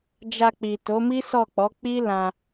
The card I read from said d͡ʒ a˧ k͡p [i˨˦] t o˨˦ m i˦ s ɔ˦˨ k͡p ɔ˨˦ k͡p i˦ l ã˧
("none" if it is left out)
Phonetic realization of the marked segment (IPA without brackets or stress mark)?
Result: i˨